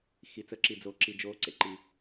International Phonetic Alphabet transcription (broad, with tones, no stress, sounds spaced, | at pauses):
x i˩ t͡s ə˩˥ ǁ i˩ d͡z o˩ ǁ i˩ d͡ʒ o˩˥ ǀ ḛ˩ ǃ i˩